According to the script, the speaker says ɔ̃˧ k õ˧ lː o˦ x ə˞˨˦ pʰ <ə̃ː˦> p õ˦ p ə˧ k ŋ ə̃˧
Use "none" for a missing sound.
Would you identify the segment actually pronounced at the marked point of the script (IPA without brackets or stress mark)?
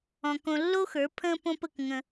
ə̃ː˦